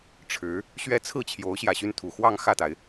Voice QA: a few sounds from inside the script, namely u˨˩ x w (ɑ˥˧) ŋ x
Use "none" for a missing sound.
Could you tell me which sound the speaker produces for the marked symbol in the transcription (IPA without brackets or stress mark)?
ɑ˥˧